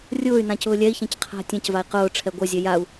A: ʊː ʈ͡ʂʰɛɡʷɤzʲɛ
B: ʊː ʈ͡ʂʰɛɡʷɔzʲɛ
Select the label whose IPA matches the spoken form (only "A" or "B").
A